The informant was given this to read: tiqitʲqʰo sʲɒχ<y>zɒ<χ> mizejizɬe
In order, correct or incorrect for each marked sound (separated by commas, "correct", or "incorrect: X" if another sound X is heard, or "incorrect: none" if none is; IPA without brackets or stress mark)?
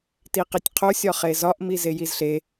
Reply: incorrect: e, incorrect: ʔ